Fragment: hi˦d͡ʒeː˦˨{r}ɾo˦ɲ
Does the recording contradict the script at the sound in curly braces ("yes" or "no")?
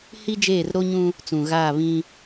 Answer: no